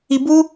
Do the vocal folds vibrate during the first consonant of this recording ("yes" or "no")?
yes